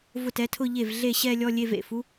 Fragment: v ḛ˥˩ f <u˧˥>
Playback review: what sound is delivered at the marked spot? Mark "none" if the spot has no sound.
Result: u˧˥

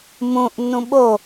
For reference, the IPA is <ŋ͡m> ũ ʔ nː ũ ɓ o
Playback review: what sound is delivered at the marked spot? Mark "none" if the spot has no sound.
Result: m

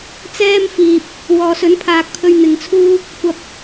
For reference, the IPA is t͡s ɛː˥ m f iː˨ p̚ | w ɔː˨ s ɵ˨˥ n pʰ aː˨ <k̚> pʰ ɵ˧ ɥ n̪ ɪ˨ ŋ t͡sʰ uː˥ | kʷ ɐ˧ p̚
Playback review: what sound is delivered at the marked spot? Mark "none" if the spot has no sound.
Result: k̚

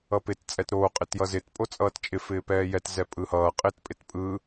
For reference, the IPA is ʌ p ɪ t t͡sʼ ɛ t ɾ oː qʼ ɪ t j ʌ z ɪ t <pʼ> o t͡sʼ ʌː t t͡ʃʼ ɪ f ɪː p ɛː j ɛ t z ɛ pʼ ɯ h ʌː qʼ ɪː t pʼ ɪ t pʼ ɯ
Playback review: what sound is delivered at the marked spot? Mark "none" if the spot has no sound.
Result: pʼ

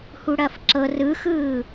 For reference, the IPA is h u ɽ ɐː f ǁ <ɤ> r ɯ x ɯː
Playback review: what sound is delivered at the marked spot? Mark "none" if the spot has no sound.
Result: ɤ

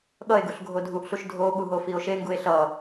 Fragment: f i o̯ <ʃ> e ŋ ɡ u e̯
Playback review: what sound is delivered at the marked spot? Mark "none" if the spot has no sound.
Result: ʃ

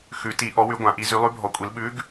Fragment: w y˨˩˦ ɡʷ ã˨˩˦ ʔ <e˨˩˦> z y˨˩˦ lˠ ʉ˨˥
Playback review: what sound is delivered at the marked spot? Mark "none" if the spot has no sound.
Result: i˨˩˦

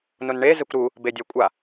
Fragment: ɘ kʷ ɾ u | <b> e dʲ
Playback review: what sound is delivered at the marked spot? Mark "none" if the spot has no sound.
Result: b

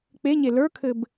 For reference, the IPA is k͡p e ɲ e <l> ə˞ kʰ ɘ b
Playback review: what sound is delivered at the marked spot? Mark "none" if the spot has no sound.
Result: l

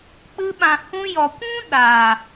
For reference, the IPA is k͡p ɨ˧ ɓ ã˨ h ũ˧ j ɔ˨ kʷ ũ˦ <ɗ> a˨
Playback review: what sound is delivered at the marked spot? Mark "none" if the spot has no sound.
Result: ɗ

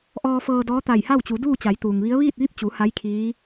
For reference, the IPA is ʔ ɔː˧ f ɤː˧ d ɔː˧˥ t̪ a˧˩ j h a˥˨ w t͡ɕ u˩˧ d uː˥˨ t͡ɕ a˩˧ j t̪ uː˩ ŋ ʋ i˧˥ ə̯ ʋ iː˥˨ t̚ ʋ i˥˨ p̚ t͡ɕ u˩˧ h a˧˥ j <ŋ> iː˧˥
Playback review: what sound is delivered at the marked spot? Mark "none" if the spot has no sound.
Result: kʰ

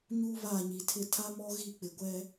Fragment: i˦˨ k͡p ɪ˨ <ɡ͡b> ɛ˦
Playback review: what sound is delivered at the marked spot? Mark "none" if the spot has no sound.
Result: ɡʷ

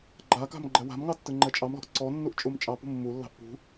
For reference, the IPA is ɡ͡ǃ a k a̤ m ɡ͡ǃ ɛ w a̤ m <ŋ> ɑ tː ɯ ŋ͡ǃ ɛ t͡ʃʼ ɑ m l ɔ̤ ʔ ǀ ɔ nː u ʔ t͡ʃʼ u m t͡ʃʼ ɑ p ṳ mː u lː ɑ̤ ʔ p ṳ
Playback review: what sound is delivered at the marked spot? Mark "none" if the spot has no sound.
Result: ŋ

